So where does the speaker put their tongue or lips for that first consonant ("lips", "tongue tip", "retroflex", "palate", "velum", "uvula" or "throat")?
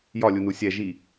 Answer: palate